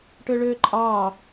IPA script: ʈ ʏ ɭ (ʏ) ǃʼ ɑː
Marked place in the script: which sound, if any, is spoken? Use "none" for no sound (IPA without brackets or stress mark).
ʏː